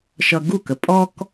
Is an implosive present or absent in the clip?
absent